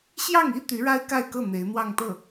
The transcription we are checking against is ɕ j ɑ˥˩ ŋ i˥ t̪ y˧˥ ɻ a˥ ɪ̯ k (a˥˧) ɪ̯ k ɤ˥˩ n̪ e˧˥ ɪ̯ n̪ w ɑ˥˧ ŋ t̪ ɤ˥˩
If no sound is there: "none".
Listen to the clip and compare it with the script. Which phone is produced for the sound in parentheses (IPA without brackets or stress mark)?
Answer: a˥˧